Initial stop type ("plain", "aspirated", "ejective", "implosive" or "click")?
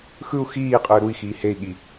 ejective